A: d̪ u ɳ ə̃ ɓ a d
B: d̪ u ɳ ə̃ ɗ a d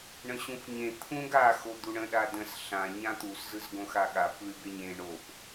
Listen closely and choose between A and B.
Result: B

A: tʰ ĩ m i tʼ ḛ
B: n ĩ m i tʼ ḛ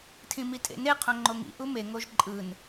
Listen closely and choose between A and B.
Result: A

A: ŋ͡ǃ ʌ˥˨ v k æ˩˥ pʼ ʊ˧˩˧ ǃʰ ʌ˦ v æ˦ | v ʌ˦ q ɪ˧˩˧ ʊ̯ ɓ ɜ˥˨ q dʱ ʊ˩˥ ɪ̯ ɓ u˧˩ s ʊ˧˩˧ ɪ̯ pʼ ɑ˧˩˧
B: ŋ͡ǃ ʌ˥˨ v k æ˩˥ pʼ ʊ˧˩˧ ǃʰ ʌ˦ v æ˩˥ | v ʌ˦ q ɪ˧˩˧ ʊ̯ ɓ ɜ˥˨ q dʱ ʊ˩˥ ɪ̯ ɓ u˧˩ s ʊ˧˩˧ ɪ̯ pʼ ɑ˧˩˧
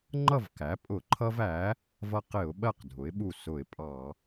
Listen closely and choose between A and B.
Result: B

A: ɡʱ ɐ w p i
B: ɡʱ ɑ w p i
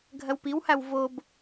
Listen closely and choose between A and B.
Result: A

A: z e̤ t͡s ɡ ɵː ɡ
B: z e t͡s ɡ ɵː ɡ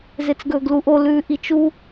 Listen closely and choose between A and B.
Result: B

